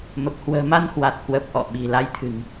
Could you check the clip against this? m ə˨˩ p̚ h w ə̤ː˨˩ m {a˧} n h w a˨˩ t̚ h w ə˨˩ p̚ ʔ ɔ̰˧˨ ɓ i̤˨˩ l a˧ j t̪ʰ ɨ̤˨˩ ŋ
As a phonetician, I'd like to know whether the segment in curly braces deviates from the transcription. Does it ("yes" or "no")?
no